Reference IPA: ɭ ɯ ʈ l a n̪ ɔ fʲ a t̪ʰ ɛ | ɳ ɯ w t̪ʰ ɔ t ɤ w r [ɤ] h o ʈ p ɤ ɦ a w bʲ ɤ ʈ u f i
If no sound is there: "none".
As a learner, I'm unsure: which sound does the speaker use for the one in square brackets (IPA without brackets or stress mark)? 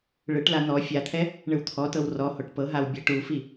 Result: ɔ